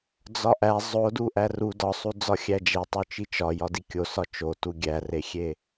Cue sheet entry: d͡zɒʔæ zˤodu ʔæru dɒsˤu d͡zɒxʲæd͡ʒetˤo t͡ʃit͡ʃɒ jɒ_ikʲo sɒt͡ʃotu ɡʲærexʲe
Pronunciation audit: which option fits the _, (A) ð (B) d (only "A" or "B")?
B